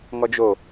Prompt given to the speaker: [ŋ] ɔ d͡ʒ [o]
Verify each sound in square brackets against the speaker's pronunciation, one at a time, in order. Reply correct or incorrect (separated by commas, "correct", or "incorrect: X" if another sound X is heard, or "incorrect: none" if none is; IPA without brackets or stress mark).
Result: correct, correct